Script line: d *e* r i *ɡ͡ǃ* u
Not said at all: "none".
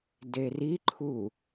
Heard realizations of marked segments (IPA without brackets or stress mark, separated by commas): e, ǃʰ